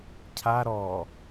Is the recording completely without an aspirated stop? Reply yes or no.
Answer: no